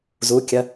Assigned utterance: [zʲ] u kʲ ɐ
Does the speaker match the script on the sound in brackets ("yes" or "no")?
no